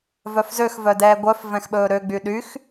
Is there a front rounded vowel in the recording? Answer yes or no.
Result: yes